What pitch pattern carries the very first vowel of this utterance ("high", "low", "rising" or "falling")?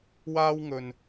high